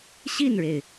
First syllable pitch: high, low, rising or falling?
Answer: falling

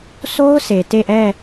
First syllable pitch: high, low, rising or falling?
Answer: high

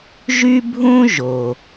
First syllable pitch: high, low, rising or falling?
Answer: high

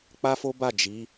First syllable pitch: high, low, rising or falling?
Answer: high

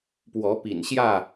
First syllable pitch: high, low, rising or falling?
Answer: rising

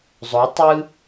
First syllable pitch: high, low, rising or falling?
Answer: rising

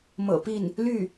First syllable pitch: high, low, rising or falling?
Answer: low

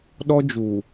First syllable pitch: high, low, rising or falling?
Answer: high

